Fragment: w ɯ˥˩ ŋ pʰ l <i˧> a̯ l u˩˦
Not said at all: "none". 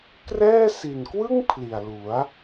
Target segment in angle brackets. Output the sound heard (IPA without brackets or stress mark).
i˨˩